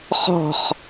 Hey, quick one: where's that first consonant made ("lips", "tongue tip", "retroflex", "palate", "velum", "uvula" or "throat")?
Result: uvula